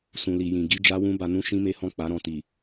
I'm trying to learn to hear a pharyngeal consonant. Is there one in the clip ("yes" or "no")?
no